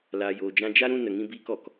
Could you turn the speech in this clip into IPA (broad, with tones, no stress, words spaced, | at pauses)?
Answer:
laː˧joː˧d͡ʒã˦ d͡ʒa˦ ɾũ˦ nə˧ŋĩ˦biː˦k ɔ˨k